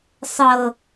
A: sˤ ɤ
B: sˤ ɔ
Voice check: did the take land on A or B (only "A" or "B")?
A